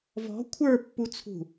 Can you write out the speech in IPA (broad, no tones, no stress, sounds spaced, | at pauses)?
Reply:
v ɔ̤ kʷʰ ə˞ pː u t͡sʰ ṳ